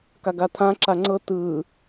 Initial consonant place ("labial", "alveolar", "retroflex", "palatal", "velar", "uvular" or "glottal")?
velar